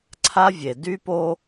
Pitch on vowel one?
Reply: high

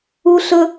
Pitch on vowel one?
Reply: high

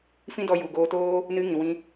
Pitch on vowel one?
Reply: high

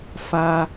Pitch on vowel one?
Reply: high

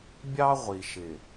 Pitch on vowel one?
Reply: high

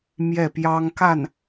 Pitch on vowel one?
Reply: falling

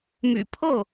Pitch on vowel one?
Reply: low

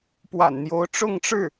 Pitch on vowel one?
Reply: low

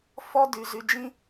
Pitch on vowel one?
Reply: high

